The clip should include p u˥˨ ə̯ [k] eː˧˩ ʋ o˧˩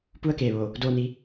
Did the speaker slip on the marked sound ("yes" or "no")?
no